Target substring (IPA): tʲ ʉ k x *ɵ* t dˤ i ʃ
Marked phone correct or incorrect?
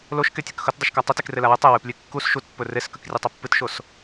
correct